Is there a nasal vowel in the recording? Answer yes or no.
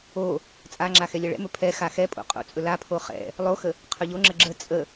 no